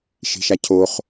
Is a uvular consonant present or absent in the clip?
present